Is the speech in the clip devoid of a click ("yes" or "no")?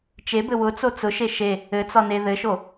yes